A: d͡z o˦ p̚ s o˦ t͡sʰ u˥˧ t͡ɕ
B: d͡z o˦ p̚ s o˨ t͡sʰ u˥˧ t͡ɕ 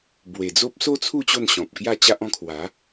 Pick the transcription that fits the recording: A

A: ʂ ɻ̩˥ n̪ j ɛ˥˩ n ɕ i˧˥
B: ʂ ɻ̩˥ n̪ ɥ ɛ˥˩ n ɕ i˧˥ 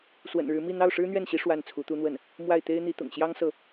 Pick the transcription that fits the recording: B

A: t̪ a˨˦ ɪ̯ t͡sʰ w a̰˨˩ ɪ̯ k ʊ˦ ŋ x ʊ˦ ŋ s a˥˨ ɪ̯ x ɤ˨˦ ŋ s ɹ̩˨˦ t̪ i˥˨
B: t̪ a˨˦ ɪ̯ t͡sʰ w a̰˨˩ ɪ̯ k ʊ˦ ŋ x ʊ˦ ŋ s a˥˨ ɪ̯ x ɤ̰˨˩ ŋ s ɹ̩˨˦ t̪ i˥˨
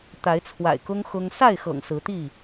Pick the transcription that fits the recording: B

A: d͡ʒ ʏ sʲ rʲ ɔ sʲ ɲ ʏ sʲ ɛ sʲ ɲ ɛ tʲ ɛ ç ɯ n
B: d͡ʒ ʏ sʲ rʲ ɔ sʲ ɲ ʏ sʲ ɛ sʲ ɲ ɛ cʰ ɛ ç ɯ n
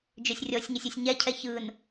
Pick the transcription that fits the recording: B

